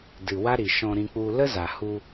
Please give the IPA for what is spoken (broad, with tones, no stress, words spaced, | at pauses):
dɨ˨ wa˦ɾi˨ʃɔ̃˧ɾĩ˧ k͡pu˧ lə˦za˨hu˧